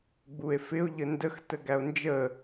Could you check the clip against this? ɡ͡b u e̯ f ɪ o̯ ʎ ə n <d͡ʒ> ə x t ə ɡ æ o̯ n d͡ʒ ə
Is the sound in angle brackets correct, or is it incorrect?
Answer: incorrect